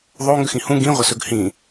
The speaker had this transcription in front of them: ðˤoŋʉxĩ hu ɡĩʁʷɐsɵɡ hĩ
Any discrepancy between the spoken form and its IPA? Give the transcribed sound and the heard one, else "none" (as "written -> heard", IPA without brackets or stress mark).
u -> ũ